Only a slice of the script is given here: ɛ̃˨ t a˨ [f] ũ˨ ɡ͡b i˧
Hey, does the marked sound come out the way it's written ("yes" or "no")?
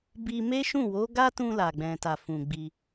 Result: yes